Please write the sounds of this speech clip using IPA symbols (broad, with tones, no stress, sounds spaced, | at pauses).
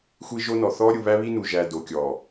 xʷ i˦ ʒ o˦ n ɔ˨ θ ɔ˦ ɾʲ u˨ β æ˦ β i˦ n u˨ ʒ æ˨ d o˨ kʲ ɔ˨